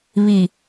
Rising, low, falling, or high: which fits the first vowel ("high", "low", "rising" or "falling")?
low